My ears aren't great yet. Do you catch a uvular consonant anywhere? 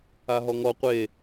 yes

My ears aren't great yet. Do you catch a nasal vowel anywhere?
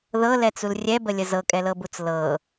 no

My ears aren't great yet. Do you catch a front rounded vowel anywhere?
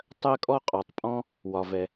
no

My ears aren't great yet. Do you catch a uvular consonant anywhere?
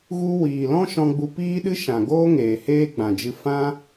no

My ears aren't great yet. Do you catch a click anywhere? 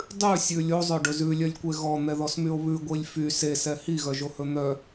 no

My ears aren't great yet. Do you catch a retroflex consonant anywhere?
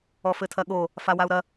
no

